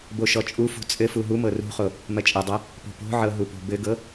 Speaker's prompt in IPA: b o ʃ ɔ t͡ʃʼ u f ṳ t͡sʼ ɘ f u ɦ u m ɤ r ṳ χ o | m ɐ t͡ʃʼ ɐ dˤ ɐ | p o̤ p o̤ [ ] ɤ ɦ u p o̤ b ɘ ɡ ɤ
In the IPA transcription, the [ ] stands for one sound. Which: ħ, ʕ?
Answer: ʕ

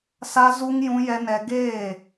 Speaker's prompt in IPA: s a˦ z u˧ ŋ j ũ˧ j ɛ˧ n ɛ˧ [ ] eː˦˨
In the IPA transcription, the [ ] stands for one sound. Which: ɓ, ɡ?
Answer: ɡ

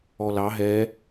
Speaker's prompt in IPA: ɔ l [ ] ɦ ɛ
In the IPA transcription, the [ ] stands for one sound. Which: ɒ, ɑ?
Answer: ɑ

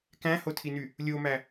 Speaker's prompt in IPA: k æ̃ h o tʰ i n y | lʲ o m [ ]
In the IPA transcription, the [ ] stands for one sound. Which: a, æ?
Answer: æ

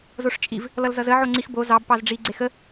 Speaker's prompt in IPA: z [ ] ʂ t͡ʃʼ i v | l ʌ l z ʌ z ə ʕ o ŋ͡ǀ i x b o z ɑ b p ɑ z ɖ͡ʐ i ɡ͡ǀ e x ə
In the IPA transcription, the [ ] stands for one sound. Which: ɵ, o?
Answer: o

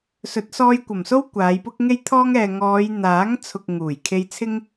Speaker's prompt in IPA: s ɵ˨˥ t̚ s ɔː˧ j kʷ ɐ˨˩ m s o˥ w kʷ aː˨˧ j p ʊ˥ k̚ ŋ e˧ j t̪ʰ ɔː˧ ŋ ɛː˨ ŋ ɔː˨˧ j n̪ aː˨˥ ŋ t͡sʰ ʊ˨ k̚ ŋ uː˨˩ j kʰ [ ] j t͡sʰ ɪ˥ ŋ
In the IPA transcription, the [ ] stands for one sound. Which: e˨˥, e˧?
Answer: e˧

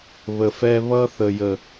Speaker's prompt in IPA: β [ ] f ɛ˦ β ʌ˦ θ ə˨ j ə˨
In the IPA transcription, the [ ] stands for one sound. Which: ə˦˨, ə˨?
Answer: ə˨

